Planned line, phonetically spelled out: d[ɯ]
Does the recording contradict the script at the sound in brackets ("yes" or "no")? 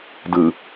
no